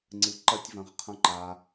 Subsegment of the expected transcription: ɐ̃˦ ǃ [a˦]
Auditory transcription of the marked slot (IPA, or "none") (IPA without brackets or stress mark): a˧